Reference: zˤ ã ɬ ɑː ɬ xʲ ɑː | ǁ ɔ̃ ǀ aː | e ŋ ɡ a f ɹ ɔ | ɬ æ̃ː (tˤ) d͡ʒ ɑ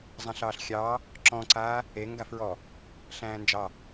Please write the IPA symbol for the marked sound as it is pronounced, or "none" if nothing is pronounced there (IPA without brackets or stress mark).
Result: n